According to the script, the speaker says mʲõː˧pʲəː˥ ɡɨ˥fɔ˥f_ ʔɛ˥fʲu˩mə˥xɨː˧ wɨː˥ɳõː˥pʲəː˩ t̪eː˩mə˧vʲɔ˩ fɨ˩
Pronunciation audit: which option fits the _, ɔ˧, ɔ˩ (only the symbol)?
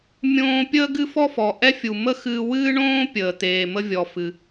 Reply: ɔ˩